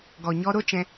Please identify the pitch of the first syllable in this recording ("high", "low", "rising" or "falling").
low